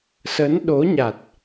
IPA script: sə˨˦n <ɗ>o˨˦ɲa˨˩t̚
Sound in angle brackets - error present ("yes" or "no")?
no